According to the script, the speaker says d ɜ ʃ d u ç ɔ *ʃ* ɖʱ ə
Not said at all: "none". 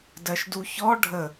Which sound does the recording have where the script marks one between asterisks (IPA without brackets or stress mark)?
none